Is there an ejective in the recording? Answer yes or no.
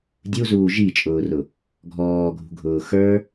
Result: yes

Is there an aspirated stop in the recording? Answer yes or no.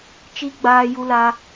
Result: no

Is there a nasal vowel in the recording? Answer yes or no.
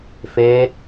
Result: no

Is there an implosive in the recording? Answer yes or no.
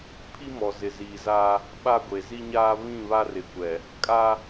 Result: yes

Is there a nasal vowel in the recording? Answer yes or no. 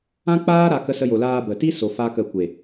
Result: yes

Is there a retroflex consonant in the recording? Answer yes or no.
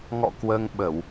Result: no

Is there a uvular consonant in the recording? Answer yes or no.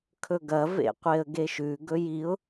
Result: yes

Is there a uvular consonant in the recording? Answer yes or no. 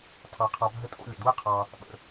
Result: yes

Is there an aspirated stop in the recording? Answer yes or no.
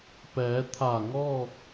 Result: yes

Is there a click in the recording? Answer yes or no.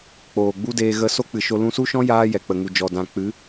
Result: no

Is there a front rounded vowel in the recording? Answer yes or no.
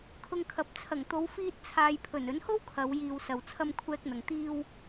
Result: no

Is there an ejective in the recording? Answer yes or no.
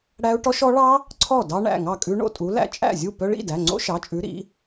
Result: yes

